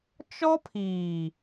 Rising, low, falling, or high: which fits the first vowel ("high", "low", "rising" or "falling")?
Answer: high